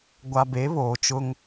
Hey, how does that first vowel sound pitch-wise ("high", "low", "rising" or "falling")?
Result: low